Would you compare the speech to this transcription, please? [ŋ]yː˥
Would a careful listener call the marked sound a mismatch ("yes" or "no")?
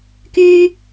yes